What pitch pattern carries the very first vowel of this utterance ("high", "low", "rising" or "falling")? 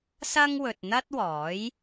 high